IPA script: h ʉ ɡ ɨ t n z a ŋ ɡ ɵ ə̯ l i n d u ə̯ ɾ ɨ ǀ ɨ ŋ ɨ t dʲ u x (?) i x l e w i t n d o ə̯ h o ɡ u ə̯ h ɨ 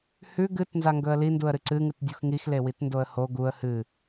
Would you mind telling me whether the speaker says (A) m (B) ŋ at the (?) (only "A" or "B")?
B